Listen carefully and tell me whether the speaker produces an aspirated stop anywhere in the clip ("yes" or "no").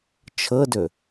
yes